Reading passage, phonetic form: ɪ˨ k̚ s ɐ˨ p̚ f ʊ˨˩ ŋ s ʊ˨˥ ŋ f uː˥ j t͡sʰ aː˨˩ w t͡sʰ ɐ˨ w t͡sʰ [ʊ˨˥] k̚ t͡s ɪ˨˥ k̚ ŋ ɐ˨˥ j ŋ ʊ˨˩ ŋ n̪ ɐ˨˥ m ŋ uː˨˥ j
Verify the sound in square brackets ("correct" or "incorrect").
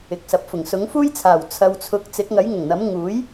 correct